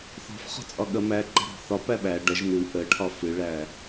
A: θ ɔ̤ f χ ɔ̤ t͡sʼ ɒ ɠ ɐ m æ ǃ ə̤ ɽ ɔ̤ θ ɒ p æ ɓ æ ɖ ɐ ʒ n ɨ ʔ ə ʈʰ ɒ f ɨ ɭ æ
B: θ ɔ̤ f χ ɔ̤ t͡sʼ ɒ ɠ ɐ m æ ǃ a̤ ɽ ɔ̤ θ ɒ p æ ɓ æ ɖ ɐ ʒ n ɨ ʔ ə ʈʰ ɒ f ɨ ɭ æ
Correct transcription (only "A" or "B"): A